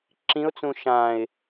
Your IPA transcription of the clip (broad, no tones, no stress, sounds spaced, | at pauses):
ǁ ĩ ʊ̯ t͡s ũ ʃ ã ɪ̯